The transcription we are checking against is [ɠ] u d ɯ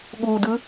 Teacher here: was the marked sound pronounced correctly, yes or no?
yes